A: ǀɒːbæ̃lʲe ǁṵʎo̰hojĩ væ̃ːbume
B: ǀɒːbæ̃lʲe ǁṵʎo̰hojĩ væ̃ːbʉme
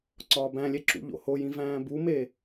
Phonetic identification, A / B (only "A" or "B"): A